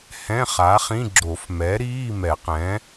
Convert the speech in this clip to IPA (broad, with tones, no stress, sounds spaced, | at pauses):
h ɛ̃˧˥˧ χ a˩˥ χ ĩ˧˥˧ ɡ͡ǁ o˨˩˦ f m ɛ˩˥ ɾ iː˧˥˧ m ɛ˨˩˦ q ɛ̃˩˥